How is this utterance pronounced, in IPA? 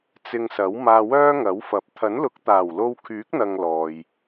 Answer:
t͡s ɪ˧ ŋ s ɐ˨˥ w m aː˧ w œː˥ ŋ ɐ˨˥ w f ɐ˨˥ p̚ t̪ʰ ɐ˨˥ n l ʊ˨˥ k̚ t̪ aː˨˩ w l o˧ w kʰ yː˨˥ k̚ n̪ ɐ˨ ŋ l ɔː˨ j

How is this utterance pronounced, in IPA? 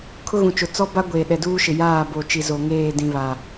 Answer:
kʰ ʊ˦ ɣ ũ˨ t͡ʃ ʊ˨ t͡s ɔ˦ b a˦ ɡʷ eː˨ ɗ ɛ˨ d uː˦ ʃ ɪ˨ j aː˦˨ b o˨ t͡ʃ i˨ z o˨ ŋ eː˦˨ d ĩ˨ β a˨

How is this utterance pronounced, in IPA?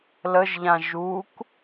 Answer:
l ə ʒ ʎ ã ʒ u k

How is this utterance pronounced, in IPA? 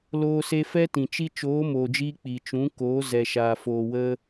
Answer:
l oː˧ s e˧ f ɛ˦ t ĩ˨ t͡ʃ i˦ t͡ʃ oː˨˦ m oː˨ d͡ʒ iː˧ k͡p i˨ t͡ʃ ũ˨˦ k oː˨˦ z ɛ˨ ʃ aː˨ f oː˨ w ə˧

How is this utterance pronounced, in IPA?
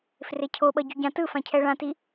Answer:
f r e cʰ o ɓ ʌ ɟ u ɟ ã t ɯ f ã cʰ ɛ ɭ ã t i

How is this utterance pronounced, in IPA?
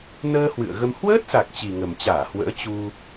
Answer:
n əː˧ h w ɨ̰˧˨ ə̯ ɣ ə˧ m h w əː˦˥ t̚ s a˨˩ k̚ t͡ɕ i˨˩ ŋ ə˨˩ m t͡ɕ aː˧˩ h w ə̰ː˧˥ t͡ɕ u˧

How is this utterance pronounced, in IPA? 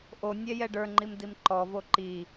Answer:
ʔ o nʲ ɛ j ɛ ɖ ə˞ ŋ͡ǃ i m d i m ǃ ɔ v o ǃ i

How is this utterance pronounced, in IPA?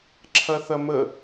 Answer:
ǁʰ ɐ θ ɐ m ə

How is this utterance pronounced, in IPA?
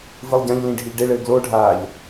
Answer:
v ɨ lˠ ɟ ã ʎ l ĩ ɖʱ i ʎ ɖ e ɭ ɘː ɡ l o ɖʱ aː ʎ

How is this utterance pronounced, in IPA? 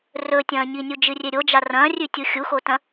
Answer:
r ɵ tʲ ɐ̃ː ɲ i nʲ u d͡ʒ ɨ rʲ e ɾʲ o d͡ʒ a r ɐ̃ː rʲ ʉ tʲ u xʲ u x o t ɐ̃

